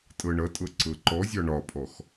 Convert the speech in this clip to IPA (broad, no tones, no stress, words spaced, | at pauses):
tʼɤɳʌtʼɤ ǀɤǃɔzʲɒ ɳɒpʼɔx